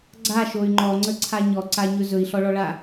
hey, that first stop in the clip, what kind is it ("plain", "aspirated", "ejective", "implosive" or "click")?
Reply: click